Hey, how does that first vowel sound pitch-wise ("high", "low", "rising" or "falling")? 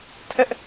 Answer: high